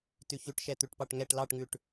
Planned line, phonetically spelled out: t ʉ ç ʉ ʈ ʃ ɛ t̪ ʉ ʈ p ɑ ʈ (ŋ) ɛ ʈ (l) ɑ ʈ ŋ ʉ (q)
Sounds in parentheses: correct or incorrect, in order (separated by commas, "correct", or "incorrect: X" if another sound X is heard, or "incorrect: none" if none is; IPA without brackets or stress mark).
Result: correct, correct, incorrect: ʈ